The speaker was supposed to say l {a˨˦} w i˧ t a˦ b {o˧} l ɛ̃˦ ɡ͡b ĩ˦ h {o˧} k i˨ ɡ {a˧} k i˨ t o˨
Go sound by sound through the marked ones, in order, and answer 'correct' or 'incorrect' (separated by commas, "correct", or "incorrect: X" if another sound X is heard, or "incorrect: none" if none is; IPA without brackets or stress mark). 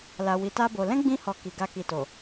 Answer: incorrect: a˧, correct, incorrect: ɔ˧, correct